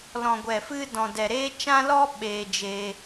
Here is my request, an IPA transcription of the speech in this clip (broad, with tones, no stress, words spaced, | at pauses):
lɔ̃˨ɡʷɛ˨ fɨ˦ dɔ̃˨dɛ˨ɾeː˦ t͡ʃã˦lɔ˦ ɓeː˧d͡ʒeː˧